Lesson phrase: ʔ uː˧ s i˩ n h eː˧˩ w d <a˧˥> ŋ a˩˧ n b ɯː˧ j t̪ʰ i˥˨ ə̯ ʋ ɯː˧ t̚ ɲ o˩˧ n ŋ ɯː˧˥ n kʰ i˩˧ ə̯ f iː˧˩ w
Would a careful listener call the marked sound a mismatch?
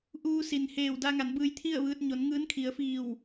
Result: yes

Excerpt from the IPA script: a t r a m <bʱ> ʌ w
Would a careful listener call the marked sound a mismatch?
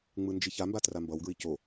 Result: yes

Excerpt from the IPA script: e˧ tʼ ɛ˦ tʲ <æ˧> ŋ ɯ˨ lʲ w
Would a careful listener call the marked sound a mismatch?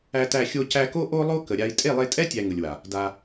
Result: no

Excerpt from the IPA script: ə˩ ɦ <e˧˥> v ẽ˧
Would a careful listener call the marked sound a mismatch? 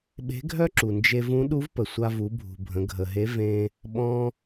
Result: no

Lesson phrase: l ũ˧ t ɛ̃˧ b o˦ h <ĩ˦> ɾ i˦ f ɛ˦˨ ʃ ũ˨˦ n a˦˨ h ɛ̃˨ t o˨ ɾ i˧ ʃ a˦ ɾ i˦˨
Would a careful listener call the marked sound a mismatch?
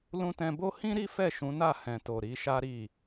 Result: no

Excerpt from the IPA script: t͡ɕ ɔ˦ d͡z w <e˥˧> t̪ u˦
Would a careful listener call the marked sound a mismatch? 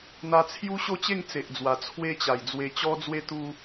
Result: yes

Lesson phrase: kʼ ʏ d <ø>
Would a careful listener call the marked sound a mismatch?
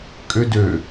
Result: no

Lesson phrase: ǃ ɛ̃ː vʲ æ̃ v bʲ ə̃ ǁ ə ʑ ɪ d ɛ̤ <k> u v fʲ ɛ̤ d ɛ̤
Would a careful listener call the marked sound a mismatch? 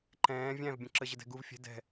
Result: yes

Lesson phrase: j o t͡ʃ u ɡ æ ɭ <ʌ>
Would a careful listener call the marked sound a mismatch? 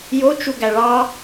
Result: yes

